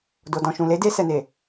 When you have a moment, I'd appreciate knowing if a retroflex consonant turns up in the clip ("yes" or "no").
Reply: no